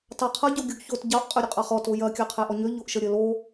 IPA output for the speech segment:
t ɑ qʰ ɐ ɟ o ɡʲ o ɡ ç o t ɟ ɑ ʔ qʼ ø ɾʲ ə qʼ ɑ χ ɔ t o j ɐ kʲ ɑ qʰ ɛ ʔ ɔ ɲ ø ʎ o ʔ ʃ ə ɾʲ ə l o

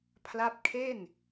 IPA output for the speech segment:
pʰ l a˦˥ p̚ kʰ e˥˩ n

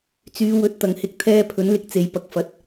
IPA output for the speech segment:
t͡s yː˨˧ w ɵ˨˥ t̚ t̪ ɐ˨˩ ŋ h ɪ˨ k̚ t̪ʰ ɛː˧ pʰ ɵ˨˥ n l ɪ˧ k̚ t͡s e˨ j p ɐ˨ k̚ f ɐ˨˥ t̚

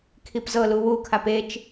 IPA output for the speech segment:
kʰ i p z ɤ l u w u kʰ a p e t͡ʃ

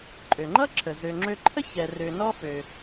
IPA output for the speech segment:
ǃʼ ø˩ ŋ͡ǃ ʌ˥ ǁʰ ə˩ z ø˨ ŋ͡ǁ ø˦ ǃʰ ə˥ ç ɛ˨ r ø˨ n ɔ˥ f ø˩

